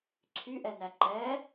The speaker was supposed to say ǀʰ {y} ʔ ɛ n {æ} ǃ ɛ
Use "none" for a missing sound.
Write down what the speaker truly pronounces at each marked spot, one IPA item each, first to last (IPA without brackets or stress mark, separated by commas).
y, æ